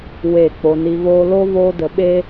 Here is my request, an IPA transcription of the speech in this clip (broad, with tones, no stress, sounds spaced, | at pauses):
w e˨ k͡p o˧ n i˧ v oː˦ l o˦ v oː˦ d ə˧ ɓ e˦